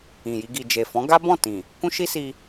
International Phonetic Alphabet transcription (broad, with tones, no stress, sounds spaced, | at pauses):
ĩ˨ j i˧ ɡ i˨ d͡ʒ e˨ f ɔ̃˨˦ ɡ a˦ b ɔ̃˦˨ t ĩ˨ | k ũ˦ ʃ i˦ s i˧